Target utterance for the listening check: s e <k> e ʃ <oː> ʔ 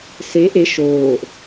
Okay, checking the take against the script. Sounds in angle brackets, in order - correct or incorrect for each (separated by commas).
incorrect, correct